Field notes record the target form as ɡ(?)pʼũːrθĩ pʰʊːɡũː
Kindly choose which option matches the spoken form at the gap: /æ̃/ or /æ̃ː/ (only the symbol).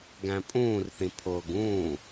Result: æ̃